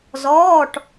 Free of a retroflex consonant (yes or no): no